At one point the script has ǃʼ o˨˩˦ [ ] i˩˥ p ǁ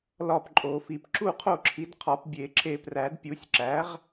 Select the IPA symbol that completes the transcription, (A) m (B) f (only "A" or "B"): B